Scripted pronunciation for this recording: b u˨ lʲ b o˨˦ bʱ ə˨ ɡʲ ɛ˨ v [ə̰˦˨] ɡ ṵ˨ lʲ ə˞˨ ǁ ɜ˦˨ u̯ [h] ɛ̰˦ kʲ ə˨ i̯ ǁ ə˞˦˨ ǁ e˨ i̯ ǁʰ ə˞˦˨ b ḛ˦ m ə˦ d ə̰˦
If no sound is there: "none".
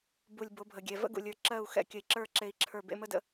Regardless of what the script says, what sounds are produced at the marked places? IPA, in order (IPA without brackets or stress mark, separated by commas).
ə̰˦, x